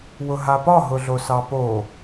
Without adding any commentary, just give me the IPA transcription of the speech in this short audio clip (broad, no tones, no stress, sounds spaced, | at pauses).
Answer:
w ʊ ɦ a p ɒ ɦ ʊ ɮ o s ɑ p o